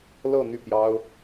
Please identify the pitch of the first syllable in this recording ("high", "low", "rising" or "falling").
falling